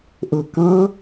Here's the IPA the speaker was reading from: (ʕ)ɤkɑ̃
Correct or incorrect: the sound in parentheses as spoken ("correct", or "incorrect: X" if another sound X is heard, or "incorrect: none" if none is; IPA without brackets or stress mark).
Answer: incorrect: ʔ